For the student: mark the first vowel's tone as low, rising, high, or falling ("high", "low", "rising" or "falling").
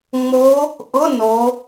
rising